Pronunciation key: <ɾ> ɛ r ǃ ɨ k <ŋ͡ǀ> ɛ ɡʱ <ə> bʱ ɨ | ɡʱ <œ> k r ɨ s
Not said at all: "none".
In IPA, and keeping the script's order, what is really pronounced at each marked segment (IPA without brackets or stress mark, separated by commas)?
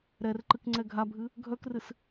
ɾ, ŋ͡ǀ, a, œ